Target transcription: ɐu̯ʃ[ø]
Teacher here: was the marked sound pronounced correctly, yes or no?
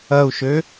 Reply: yes